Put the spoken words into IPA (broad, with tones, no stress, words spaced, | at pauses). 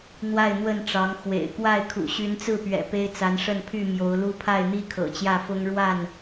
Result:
n̪wa˥˨ɪ̯n̪wə˥˨nʈ͡ʂɑ˨˦ŋ xwḛ˨˩ɪ̯kwa˥˨ɪ̯ kʰṵ˨˩ɕy˨˦nt͡sɹ̩˥˨pɥɛ̰˨˩ pe˦ɪ̯t͡sa˨˦nʂə˥˨n pʰy˥˨mjo˨˦ʊ̯lu˦ pʰa˥˨ɪ̯n̪i˦kʰɤ̰˨˩ t͡ɕjä˥˨fʊ˦ŋ ɻwa˥˨n